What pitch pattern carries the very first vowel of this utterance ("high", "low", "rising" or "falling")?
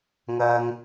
high